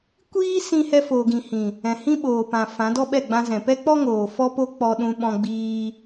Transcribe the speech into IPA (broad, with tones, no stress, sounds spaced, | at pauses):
kʷ iː˦ s ĩ˧ h ɛ˧ f oː˨ ɡ ĩ˨ h ĩ˨ | ɛ̃˨ h ĩ˦ ɓ oː˨ p ã˨ f ã˨˦ d ɔ˦ ɓ ɛ˦˨ ɡ͡b ã˧ z ɛ̃˨ p ɛ˦ k͡p ɔ˦ ŋ oː˨ f ɔ˦ p o˦ k͡p ɔ˦ ɗ ũ˦ ɓ ɔ̃˦ ɡ͡b iː˦